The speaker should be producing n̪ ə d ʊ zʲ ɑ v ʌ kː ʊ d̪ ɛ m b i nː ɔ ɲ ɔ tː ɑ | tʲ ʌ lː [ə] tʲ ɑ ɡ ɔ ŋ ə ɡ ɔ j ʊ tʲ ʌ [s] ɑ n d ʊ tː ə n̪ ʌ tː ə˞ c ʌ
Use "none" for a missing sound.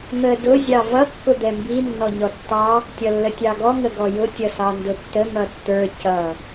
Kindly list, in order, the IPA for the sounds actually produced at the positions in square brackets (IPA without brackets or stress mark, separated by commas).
ə, s